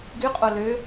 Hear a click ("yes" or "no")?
no